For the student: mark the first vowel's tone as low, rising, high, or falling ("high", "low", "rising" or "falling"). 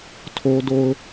high